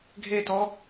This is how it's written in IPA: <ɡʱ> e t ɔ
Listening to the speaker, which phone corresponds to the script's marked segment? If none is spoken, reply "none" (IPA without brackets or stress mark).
ɡʱ